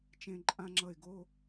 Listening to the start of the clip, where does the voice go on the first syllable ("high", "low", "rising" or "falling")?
high